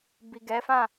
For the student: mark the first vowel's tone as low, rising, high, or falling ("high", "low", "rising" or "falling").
low